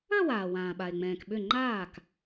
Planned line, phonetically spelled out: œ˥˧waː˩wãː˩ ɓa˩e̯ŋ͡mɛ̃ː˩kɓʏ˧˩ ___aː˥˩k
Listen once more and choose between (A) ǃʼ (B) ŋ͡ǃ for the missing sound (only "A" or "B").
B